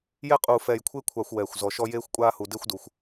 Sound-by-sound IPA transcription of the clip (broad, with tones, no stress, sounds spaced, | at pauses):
j ɛ˥ qʼ uː˨ f ɛː˨ j kʷʰ ɪː˦ kʷʰ a˨ xʷ w ɛː˩ xʷ z ɔ˩ ʃ ɔ˦ j eː˥ xʷ kʷʼ aː˥ h u˨ d ɪː˥ xʷ d u˩ xʷ